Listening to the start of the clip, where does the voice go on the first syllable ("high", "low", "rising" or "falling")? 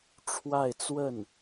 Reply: falling